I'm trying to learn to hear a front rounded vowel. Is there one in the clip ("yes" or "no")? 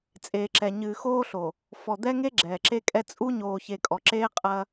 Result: no